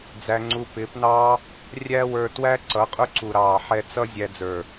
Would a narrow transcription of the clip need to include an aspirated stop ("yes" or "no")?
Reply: no